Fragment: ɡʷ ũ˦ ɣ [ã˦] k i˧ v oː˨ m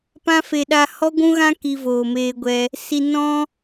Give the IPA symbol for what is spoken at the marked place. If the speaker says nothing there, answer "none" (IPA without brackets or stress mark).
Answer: ã˦